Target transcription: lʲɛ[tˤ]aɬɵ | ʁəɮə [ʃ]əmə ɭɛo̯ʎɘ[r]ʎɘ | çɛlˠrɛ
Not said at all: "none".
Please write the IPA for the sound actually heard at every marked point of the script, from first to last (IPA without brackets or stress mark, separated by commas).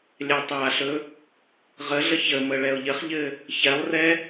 tˤ, ç, χ